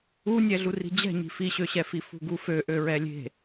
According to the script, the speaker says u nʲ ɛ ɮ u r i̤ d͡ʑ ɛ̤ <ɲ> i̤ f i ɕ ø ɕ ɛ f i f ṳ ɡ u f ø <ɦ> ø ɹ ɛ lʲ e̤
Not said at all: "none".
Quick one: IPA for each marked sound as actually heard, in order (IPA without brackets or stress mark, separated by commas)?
ɲ, ʔ